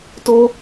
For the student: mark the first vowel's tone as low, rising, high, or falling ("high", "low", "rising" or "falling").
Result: high